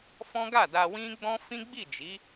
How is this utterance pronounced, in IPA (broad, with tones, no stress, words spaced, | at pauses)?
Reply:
fɔ̃˦ɡa˦˨da˧ wĩ˦ɡ͡bɔ̃˦ fĩ˦ɡ͡bi˦˨d͡ʒi˨˦